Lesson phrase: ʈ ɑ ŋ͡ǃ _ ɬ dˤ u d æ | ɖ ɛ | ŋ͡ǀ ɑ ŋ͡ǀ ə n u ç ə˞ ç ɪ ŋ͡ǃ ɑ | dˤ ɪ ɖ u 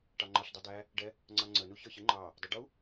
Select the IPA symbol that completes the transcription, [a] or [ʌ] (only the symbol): ʌ